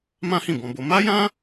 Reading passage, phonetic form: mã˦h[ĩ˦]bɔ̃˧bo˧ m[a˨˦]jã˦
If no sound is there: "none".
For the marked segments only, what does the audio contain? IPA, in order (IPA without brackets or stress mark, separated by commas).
ĩ˦˨, a˦